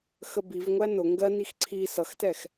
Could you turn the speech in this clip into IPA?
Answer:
x ə b i v ŋʷ æ n ʊ ŋ ɡ ɜ n i x ǀʰ i s ʌ x t ɛ x

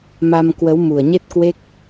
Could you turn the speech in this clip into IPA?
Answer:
m a˧ m k w ə˨˦ w m u˨˩ ə̯ ɲ e˦˥ t̚ k w e˦˥ k̚

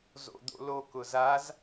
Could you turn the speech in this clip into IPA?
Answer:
z o̰ d̪ o̰ l o k ʊ z a z

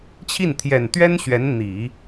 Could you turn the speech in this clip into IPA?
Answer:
t͡ɕʰ i˥˩ n t̪ʰ j ɛ˨˩ n t̪ ɥ ɛ˥ n ɕ ɥ ɛ˧˥ n n̪ i˨˩˦

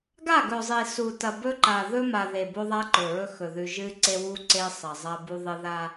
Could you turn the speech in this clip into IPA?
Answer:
ɡ a˦˨ ɡ ɵ˨ zˤ i˨ s u˨ t ɐ˨ b ɵ˦ ǃ a˨ ð ɵ˦ m a˨ ð e˨ b o˦ ðˤ a˦ ǃ ɵ˨ ɹ ɵ˦ x ɵ˨ ð ʉ˨ ʒ ɨ˦ ǀ e˦ w u˦ ǀ e˦ sˤ ɐ˨ zˤ ɐ˦ b u˦ ðˤ ɨ˦ ð a˦

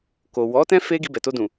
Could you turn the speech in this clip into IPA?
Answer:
k o˨ w ɔ˨˦ t ɛ̃˦ f e˦ ɡ i˧ b ɛ˨ t o˧ d ũ˨

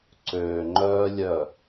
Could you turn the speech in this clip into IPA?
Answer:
ǀ øː˨ ŋ͡ǃ œː˦ lʲ œ˦˨

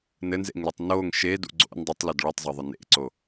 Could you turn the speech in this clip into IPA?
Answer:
n ɘ n z ḛ ŋ l ɘ tˤ n o ŋ ʃ e d ṵ ɡ͡ǀ o̰ n dˤ ɨ tˤ l ɤ d ɭ u tˤ zˤ ɤ ðˤ ə n ḛ ǀ o

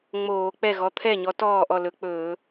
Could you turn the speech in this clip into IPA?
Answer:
ŋ͡m oː˧˩˧ k͡p ɛ˥˩ ɣ ɔ˨˥ t̪ʰ ɛ˥˩ ɲ ɔ˨˥ t ɔː˥˩ ʔ ɔ˥˩ l ɵ˧˩˧ k͡p ɵː˧˩˧

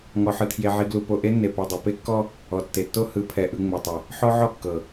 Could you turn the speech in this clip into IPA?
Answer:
ŋ ɔ˨ ħ ɯ˨ tʰ j e˨ ʕ i˨ ɡ l u˨ p o˨ ʔ e˦ nː e˨ p ɛ˨ dˤ e˨ p e˦ kː ɔ˦ | ɔ˨ tː e˨ tː o˦ h ɯ˨˦ pʰ ɛ˨ ʔ ɯ˨ ŋ͡m ɛ˨ tˤ ɛ˨ | ħ ɔ˦ ʕ ɔ˦˨ kː ɤ˨

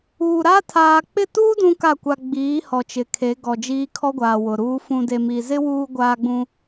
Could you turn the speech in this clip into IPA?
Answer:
uː˨ ɾ a˦ tʰ aː˨ k͡p ɪ˦˨ t uː˦ d ũ˦ k a˦˨ kʷ a˨ ɡ͡b iː˨˦ h ɔ˨ t͡ʃ ɪ˨ kʰ e˨˦ ɡ ɔ˨ d͡ʒ iː˦ kʰ ɔ˦ ɡʷ aː˨ w ʊ˨ ɾ uː˦ f ũ˨ d e˨ m i˨ z ɪ˦ w uː˦ ɡʷ aː˦ ɡ͡b ũ˦

